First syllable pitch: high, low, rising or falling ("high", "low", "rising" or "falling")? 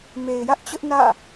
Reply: low